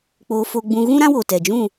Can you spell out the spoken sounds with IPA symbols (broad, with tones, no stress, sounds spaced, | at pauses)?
k͡p oː˧ f o˧ ɡ͡b ũ˧ ɣ ũ˦ ɾ ã˦ w o˨ t ɛ˨ d͡ʒ ũ˦˨